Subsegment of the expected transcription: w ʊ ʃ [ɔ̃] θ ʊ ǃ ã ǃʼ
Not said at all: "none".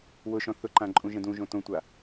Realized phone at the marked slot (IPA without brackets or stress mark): ɔ̃